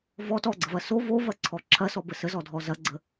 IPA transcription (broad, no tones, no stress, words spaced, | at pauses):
vɔ tɔɡ͡ǀəvɐ so vovɐǀʰɔ ǁʰɐsɔbə səzɔdʱɔ zɐɡ͡ǀə